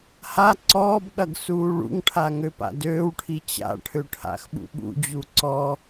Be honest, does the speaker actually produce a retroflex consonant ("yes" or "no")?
yes